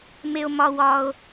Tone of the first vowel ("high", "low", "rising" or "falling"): low